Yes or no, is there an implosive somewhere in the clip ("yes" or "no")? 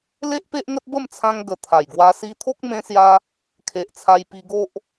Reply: no